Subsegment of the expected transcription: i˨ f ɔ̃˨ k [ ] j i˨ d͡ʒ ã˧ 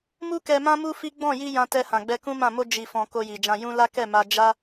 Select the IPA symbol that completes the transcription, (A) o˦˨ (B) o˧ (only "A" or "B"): B